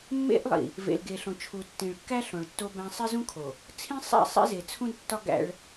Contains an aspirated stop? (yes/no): yes